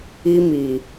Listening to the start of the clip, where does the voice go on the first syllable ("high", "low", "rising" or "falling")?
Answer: high